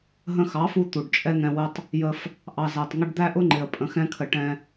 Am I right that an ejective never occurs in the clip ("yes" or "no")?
no